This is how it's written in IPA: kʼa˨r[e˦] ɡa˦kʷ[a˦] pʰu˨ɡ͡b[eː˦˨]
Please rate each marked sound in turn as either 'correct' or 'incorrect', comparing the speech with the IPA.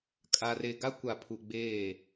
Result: incorrect: e˨, incorrect: a˨, correct

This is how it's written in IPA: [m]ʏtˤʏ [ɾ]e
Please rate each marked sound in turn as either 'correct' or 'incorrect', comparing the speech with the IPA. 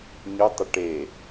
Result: incorrect: ɲ, incorrect: ʈ

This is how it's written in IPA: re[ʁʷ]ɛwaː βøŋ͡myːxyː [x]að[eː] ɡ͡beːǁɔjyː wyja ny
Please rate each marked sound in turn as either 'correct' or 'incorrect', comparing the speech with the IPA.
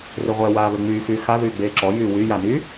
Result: correct, correct, incorrect: yː

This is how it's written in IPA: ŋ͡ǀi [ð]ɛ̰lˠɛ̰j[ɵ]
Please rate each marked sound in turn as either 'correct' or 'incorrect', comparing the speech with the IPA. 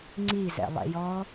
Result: incorrect: z, incorrect: ɔ

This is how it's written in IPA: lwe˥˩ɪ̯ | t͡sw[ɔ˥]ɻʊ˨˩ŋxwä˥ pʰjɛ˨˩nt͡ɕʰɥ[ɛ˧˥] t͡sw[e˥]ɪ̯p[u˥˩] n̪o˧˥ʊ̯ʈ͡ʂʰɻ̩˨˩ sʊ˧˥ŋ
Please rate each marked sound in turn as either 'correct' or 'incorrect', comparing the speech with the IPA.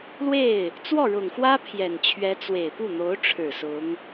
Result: incorrect: ɔ˥˩, correct, incorrect: e˨˩, correct

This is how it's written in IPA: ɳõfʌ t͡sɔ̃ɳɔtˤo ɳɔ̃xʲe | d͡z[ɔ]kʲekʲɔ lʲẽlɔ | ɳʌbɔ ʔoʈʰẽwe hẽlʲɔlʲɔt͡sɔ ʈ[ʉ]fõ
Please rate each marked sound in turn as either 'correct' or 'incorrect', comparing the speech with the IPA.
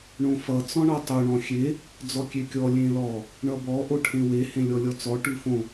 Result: correct, correct

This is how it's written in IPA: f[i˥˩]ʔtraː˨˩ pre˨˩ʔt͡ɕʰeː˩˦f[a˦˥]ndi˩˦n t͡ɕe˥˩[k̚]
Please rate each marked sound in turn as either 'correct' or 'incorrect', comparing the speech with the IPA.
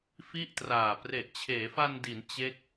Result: correct, incorrect: a˧, correct

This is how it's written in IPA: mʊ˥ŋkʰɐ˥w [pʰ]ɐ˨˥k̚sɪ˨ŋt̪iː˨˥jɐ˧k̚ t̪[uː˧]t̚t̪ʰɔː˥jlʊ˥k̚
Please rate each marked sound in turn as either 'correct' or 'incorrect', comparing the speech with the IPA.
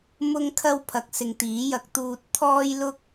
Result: correct, correct

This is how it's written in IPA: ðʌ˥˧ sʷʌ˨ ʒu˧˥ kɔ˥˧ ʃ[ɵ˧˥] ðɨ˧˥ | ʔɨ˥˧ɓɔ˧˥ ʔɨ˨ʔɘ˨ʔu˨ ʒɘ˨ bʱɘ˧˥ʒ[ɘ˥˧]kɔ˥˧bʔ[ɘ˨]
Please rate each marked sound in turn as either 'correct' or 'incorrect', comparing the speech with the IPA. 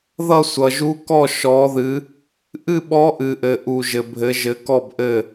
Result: incorrect: ɔ˧˥, incorrect: ɘ˧˥, incorrect: ɘ˥˧

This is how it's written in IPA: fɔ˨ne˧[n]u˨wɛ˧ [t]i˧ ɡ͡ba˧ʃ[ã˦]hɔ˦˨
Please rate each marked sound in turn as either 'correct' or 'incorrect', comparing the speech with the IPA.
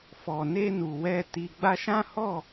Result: correct, correct, correct

